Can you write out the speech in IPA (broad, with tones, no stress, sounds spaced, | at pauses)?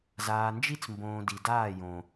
z aː˨ n d͡ʒ i˦ t͡s m b õː˨ d i˨ d aː˦˨ j õ˨